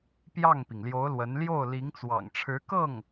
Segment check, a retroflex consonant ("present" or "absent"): present